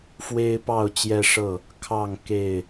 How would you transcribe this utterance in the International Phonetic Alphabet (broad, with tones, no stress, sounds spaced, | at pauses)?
f w e˦ ɪ̯ p ɑ˥˨ ʊ̯ t͡ɕ j ɛ˦ ʂ ɤ˥˨ | kʰ ɑ˥˨ ŋ k e˥˨ ɪ̯